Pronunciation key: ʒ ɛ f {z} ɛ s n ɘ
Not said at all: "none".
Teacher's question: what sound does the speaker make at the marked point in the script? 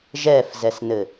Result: z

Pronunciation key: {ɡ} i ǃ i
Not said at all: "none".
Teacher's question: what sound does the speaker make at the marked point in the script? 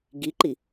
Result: ɡ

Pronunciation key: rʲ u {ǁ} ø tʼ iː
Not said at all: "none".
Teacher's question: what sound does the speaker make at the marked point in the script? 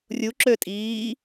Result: ǁ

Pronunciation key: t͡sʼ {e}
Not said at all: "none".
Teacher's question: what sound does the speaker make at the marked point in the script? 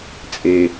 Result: e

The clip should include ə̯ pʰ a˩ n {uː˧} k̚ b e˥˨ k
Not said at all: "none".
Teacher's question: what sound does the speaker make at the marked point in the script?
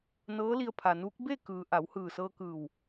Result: uː˧˥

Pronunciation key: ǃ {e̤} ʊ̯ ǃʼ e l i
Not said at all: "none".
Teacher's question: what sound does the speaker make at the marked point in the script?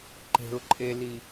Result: e̤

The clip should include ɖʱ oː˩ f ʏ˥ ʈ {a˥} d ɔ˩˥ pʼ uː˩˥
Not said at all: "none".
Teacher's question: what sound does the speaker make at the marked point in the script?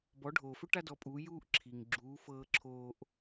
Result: a˥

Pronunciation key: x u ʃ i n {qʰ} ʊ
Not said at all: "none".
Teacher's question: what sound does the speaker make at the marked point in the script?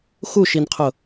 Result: qʰ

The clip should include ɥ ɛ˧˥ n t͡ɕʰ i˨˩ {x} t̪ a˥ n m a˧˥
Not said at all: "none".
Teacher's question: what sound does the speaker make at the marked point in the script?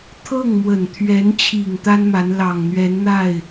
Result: ŋ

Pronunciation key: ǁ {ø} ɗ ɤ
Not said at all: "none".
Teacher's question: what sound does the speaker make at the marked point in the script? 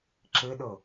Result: ɘ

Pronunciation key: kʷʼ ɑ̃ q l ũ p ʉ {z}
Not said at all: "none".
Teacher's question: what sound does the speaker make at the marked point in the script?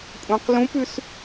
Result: s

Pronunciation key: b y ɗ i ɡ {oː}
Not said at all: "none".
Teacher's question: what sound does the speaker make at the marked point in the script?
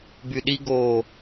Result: oː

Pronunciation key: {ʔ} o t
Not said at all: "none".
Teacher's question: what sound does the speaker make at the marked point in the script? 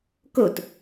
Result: k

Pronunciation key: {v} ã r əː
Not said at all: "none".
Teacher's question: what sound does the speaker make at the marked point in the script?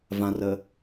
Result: v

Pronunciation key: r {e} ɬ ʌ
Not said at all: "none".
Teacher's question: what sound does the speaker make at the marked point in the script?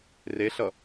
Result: e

